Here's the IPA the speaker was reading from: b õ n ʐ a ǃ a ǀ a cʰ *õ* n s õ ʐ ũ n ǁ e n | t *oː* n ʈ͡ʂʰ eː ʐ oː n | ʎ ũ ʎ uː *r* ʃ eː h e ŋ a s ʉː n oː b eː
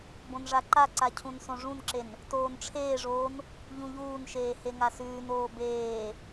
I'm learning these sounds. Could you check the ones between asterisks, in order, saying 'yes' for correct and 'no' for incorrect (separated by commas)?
no, yes, no